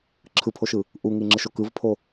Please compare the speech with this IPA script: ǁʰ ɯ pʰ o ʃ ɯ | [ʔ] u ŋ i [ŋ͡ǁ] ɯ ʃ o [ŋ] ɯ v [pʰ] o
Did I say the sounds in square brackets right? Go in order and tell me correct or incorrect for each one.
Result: correct, correct, incorrect, correct

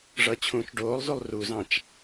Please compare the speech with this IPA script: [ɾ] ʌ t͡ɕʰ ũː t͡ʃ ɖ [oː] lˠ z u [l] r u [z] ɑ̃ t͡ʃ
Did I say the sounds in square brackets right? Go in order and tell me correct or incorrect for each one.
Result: incorrect, correct, incorrect, correct

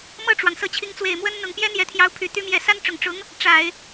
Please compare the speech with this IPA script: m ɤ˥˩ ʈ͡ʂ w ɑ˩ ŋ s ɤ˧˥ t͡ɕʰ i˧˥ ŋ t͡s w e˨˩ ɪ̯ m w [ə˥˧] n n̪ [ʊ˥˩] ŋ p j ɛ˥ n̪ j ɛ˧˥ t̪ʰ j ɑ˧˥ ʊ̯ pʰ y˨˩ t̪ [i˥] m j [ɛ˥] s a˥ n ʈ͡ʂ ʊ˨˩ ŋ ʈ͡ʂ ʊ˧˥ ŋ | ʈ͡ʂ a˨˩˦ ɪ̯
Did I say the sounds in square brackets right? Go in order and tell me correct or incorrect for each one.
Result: incorrect, incorrect, incorrect, incorrect

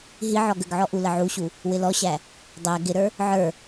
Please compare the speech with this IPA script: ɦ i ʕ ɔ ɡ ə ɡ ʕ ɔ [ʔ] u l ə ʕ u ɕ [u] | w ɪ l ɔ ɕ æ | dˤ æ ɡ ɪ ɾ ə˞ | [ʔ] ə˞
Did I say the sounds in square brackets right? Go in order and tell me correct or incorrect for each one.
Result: correct, correct, incorrect

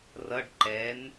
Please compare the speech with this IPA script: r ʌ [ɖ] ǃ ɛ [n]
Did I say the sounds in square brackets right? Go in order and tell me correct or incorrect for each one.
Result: correct, correct

